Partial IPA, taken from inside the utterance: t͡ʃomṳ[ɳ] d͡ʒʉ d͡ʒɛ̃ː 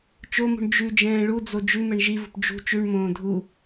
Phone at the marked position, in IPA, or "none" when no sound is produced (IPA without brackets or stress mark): ɳ